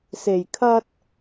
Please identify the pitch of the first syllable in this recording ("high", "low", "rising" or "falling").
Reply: low